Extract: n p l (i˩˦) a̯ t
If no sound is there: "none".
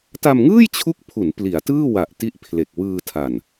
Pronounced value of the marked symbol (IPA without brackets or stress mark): i˩˦